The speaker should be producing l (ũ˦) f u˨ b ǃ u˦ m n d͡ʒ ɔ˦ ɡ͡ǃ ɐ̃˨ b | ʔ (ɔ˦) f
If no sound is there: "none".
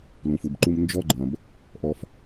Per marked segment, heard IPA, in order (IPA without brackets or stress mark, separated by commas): ũ˨, ɔ˦